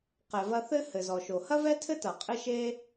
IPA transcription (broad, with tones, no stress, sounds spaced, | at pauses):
q ɛ˩ v ɐ˧ θ ɘ˥ h ɘ˩ z ɔ˩ ʃ o˩ h ɐ˥ v ɛ˥ tʰ ɘ˥ t ɐ˩ qʼ ɘ˥ ʃ e˥